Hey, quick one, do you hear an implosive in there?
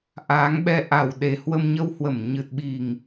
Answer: yes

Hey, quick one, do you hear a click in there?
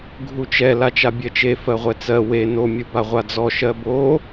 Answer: no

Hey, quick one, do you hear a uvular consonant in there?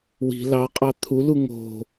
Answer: yes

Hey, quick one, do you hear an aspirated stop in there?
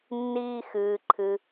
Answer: yes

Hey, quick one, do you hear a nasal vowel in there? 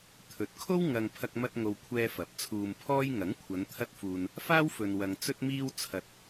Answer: no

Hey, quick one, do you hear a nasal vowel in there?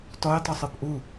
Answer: no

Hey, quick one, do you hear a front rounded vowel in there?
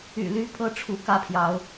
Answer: yes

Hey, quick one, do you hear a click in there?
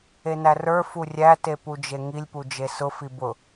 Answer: no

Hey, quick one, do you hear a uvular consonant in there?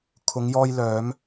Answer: no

